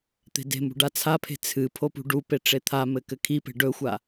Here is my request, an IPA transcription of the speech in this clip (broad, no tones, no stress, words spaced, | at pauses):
t̪e̤de̤mṳ ɖat͡sʰapʰe̤ t͡sʰɨ pʰopṳɖupe ʈ͡ʂet̪ʰamɘ kɘkʰipe̤ ɖɵxʷa